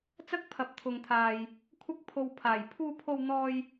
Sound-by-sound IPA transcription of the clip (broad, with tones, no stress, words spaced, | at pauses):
t͡sɐ˥k̚pʰɐ˨˥p̚t̪ʰʊ˨ŋt̪ʰaː˨j | kʷʰɐ˧k̚pʰo˨wpʰaː˨˩j pʰuː˧pʰo˧w n̪ɔː˧j